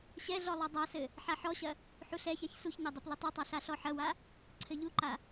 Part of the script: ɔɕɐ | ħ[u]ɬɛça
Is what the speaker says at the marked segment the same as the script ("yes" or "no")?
yes